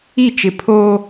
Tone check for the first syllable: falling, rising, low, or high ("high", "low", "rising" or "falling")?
falling